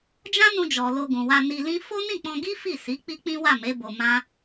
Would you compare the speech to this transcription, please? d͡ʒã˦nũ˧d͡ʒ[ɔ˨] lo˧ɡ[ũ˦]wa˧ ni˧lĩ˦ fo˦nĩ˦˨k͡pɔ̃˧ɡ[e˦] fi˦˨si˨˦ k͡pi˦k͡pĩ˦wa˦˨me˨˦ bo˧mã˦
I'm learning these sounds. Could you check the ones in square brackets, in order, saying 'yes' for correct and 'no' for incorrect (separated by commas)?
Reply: yes, no, no